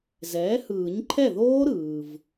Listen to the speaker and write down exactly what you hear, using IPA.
z ɛː˩˥ h ɯː˨˩˦ ɲ ǃʰ ɛ˥˩ ð oː˦˥ ɾ ɯː˨ v

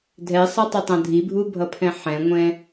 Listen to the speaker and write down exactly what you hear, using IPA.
dʱ ɛ sˤ a tˤ ɛ tˤ ã dʱ i bʱ u bʱ ʌ pʰ ɛ̃ ħ ɛ̃ ŋʷ ɛ̃

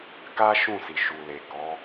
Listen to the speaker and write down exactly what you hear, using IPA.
k a˦ ʃ ũ˦˨ s i˨ ʃ u˨ l e˨ k ɔ˨˦

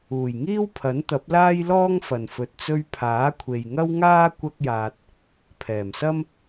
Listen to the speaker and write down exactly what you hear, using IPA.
uː˨˩ j ŋ iː˥ w pʰ ɐ˨˥ n t̪ ɐ˨˥ p̚ l aː˥ j l ɔː˥ ŋ f ɐ˨ n f ɵ˨ t̚ t͡s ɵ˧ ɥ pʰ aː˨˥ kʷʰ e˨ j ŋ ɐ˥ w ŋ aː˥ kʷ ɐ˥ k̚ j aː˧ t̚ | pʰ ɛː˨˩ m s ɐ˥ m

